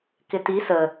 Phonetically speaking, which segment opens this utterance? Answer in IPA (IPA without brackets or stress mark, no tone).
k